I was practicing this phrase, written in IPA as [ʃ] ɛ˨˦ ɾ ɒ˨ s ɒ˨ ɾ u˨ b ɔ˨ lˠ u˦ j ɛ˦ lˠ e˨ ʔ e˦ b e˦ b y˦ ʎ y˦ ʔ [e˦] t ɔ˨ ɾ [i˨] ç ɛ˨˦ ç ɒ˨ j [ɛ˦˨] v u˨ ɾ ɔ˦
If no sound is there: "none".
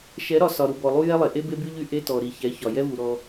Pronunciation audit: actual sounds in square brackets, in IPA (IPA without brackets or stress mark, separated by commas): ʃ, e˦, i˨, ɛ˦